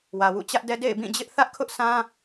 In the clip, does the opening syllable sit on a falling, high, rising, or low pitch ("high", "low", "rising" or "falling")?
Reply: low